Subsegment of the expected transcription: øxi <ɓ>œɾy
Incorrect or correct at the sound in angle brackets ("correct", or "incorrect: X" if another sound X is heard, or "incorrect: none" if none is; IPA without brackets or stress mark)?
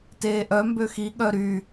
incorrect: ɠ